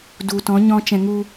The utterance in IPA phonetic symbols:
d u˨ t ɔ̃˨˦ ɲ ɔ̃˧ t͡ʃ ɛ̃˧ ŋ u˦

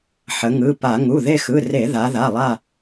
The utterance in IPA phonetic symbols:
ħ ə˩˧ ŋ ɯ˩˧˩ p a˧˩˧ ŋ u˩˧˩ ð e˦˨ x ɯ˩˧˩ r e˧˩˧ ð a˩˧ ð a˩˧˩ lˠ a˦˨

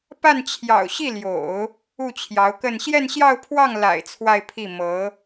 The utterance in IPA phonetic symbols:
p a˥˩ n t͡ɕʰ j ɑ̰˨˩ ʊ̯ ɕ i˥˩ l j o̰˨˩˦ ʊ̯ | u˥˩ t͡ɕʰ j ɑ˧˥ ʊ̯ k ə˥˧ n ɕ j ɛ˥˧ n ɕ j ɑ˥˧ ʊ̯ pʰ w ɑ˥˩ ŋ l a̰˨˩ ɪ̯ t͡sʰ w a˥˧ ɪ̯ pʰ i˥˩ m ɤ˧˥

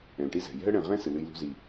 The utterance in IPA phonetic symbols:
ɛ̃˨ l ʈ i˦ z ɛ̤˨ j ɛ̤˦ ə̯ ɽ ɛ̃˨ ʁ ɛ̃˦ s ɨ˨ l ɨ˧ j l ṳ˧ z i˨

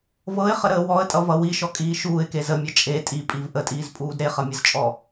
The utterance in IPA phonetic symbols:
v ɤ ɪ̯ χ ə ɾ əː w ɔ ə̯ tʼ ʌ v ʌ w i ʃ ɔ kʼ iː ʃ uː ɪ̯ k e z ə mʲ ʌ t͡ʃʼ e tʼ i pʼ i v ʔ ə tʼ iː z pʼ uː d ɾ e χ ʌ mʲ ʌ z t͡ʃʼ ɔ

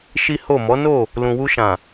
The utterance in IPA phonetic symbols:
ʃ i˦ h o˦˨ m ɔ˨˦ n o˦˨ | l ũ˨ w u˧ ʃ ã˨

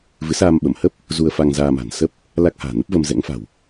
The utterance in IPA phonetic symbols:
v ɨ˨˦ s aː˧ m ɓ ə˧˩ m h ə˦˥ p̚ | z u˧ ə̯ f a˧ ŋ z aː˧ m a̤˨˩ n s ə˦˥ p̚ | l a˦˥ k̚ h a̤ː˨˩ n ə˦˥ p̚ v ə˧ m z ɛ̰˧˥ ŋ f a̤˨˩ w

